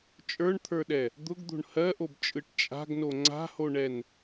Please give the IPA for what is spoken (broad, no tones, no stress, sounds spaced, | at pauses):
t͡ʃʼ ə˞ ɳ t̪ʰ ə˞ ɗ ɛ | d̪ ʊ ɡ d̪ o̤ ɳ h ɜ ʔ o b t͡ʃʼ ɯ ʈ t͡ʃʼ a̤ ɡ n o ŋ͡ǀ a̤ h o ɳ ɛ n